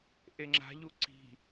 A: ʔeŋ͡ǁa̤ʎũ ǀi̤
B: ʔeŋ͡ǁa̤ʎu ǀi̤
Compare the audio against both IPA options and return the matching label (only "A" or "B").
B